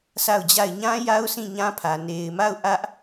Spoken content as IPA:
sʰ a˦˨ ʊ̯ d͡ʑ a˦˨ ɪ̯ ɲ ã˦ j a˦ ʊ̯ s ĩ˦˨ ɲ ã˦ pʰ ä˨ n e˨ ɪ̯ m a˦˨ ʊ̯ ʔ ä˦ ʔ

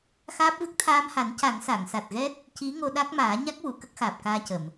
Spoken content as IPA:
x aː˦˥ p̚ v ɨ˦˥ k̚ t̪ʰ aː˧ m h a˨˩˦ n c a˨˩˦ ŋ s a˨˩˨ ŋ s a˨˩ t̚ ɣ ɛ˦˥ t̚ | c i˧˥ ŋ o˧ ɗ a˦˥ k̚ m aː˨˩˦ ɲ a˦˥ k̚ w u˨˩˨ k ə˦˥ k̚ x aː˨˩ p̚ k aː˧ c ə˨˩˨ m

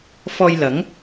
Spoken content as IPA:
f ɔː˧ j l ɐ˨˥ ŋ

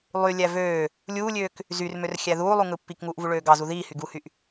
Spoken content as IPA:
lˠ y lʲ æ v øː | lʲ uː lʲ øː k | z y r m ø r xʲ æ ð uː lˠ u ŋ ɯ pː i k ŋ uː ʔ v u ɭ øː ɡ ɑ z u ð iː h y ɡ u h y ʔ

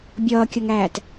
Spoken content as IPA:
bʲ ʌː kʲ ʌ ŋ æː t

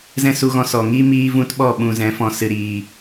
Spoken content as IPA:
z ɛ̃˦ s u˧ ɣ ɔ̃˧ s ɔ˨ ŋ iː˦ m iː˦ v ũ˦ t ɓ ɔ˦˨ ɓ ũ˨ z ɛ̃˨˦ f ɔ̃˨ s ɨ˨ ɾ iː˨

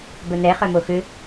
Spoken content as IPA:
b œ n̪ ɛ χ œ m o x ʏ

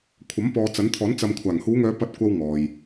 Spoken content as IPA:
kʷʰ ɐ˨˥ m p ɔː˨ t͡s ɐ˨˥ n t̪ʰ ɔː˨˥ n t͡s ɐ˨ m kʷʰ aː˨˩ ŋ h uː˨˧ ŋ œː˨˧ p ɐ˧ t̚ kʷ ɐ˧ w ŋ ɔː˨ j

